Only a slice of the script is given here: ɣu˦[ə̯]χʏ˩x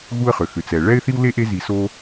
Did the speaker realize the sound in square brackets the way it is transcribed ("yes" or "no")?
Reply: yes